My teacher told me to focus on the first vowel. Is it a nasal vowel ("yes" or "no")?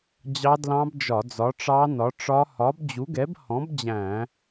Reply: no